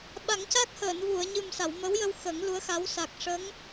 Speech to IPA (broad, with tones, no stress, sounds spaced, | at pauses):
ɓ a˨˩˦ ŋ c a˦˥ k̚ h əː˨˩˨ n v u˨˩˨ ə̯ ɲ ɨ˨˩ m s a˨˩˨ w m ə˧˥ w j ə˧ w x əː˨˩˦ ŋ l u˧˥ ə̯ x a˧˥ w s a˨˩ k̚ ʂ ə˧˥ ŋ